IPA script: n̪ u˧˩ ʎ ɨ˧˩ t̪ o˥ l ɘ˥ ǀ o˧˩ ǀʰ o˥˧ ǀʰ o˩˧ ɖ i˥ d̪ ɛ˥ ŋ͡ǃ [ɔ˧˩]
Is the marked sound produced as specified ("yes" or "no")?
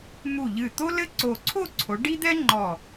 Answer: yes